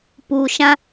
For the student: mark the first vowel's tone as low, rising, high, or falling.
low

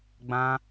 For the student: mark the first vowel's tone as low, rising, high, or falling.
high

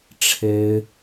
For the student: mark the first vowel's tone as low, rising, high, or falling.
high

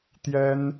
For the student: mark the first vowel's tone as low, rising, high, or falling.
high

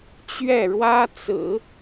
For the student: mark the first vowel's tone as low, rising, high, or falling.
falling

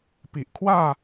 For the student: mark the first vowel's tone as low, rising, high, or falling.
low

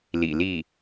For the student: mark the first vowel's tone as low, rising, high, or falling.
low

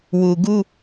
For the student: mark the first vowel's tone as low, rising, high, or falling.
low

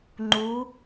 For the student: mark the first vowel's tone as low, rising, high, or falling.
rising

